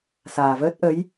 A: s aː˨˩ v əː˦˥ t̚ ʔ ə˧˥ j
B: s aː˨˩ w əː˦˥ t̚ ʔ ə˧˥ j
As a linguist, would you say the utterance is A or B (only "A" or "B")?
A